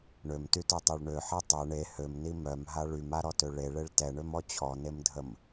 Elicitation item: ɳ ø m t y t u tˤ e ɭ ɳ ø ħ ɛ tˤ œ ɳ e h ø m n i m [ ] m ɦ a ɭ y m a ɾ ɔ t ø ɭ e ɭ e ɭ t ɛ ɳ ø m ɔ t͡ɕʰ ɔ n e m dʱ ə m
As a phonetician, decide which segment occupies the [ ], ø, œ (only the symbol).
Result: œ